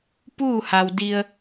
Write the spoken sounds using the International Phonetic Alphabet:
p uː˥˨ h a˩ w d i˩ ə̯

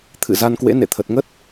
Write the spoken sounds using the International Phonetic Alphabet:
t̪ʰ ɨ̰˧˨ z a˧ n k w ḛ˧˥ n ḛ˧˨ t̪ʰ ə˨˩ t̚ ŋ ə˦˥ t̚

